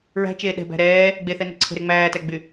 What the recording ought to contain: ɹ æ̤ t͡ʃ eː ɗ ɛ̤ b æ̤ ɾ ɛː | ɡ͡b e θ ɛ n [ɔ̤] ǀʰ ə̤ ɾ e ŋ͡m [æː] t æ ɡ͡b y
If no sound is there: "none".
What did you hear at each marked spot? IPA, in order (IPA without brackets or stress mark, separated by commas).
ə̤, æː